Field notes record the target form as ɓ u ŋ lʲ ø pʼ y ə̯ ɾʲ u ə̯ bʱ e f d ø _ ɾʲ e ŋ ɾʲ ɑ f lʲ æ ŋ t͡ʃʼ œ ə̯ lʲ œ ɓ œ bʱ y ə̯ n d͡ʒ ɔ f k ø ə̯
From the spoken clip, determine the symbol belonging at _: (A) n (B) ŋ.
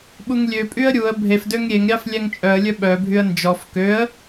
B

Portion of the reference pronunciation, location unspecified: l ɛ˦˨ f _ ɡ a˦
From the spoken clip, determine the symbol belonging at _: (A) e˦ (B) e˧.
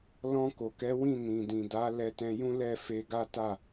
B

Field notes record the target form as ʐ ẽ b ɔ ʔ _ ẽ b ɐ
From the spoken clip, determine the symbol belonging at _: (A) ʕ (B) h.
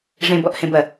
B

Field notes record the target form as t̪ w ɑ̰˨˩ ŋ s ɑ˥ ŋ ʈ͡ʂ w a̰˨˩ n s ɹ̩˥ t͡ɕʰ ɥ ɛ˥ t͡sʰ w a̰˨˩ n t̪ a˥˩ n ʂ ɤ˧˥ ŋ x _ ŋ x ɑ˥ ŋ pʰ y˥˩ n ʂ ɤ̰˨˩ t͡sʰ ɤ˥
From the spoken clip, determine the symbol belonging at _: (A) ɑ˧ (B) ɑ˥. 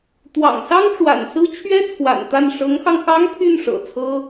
A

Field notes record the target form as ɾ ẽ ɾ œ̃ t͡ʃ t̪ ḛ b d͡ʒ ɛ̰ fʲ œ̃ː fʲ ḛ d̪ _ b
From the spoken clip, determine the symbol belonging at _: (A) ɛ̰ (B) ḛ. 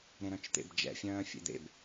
B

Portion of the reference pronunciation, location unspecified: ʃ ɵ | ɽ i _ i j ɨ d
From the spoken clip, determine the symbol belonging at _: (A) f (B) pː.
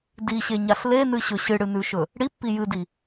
B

